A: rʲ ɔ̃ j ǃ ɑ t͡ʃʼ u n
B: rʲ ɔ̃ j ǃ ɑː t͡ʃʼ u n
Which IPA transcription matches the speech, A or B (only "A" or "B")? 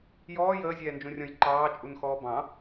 B